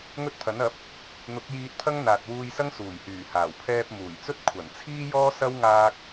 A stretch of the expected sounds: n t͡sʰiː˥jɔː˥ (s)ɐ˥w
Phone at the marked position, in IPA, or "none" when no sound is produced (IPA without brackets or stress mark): s